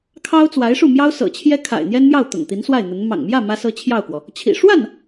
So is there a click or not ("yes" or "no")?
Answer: no